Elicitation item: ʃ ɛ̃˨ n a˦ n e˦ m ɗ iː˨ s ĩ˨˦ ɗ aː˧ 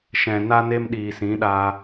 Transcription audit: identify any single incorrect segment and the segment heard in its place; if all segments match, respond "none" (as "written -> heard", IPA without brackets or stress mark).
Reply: none